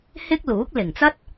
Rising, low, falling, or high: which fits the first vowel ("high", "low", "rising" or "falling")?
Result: high